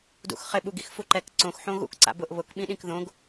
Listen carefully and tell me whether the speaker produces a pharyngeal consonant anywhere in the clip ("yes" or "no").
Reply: yes